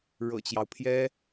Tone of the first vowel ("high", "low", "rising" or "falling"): low